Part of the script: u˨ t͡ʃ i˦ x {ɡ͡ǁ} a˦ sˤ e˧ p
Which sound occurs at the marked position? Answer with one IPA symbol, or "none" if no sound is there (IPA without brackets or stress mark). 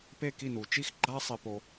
ɡ͡ǃ